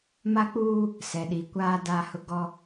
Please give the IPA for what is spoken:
ma˦k͡puː˦ | sɛ˨ɗi˨kʷaː˦ da˦hʊ˦ ɡɔ˦

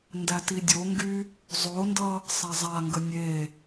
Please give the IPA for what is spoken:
ndætidʲoŋɡy | zˤondʌ | sˤazˤaŋɡə nʲe

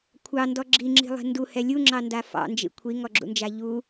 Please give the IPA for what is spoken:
kʷʰɑndɔ ɡ͡ǁiŋ͡ǁi̤lˠi̤ nduhɛ lʲuŋ͡ǁɑnda fɑ̰nd͡ʒḭ kʷʰiŋɔɡ͡ǁṵnd͡ʒa ʎu

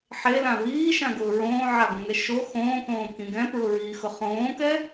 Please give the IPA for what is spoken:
ħelã βiːʃãɡʊː ɹõːʕaɡõŋɛ ʃo xõːkõːkĩ ɡɛ̃pɹʊɹiːxʊ χõːkɛ

